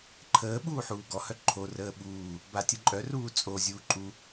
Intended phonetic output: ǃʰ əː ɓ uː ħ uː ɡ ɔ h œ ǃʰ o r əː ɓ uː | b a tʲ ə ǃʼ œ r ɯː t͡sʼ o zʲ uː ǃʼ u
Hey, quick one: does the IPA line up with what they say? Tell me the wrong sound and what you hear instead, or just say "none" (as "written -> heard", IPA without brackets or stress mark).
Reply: ɯː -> uː